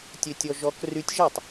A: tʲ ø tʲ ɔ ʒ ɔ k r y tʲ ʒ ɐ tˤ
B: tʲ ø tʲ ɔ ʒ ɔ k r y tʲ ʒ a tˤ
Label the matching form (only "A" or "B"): B